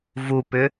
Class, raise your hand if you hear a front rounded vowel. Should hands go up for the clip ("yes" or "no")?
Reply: yes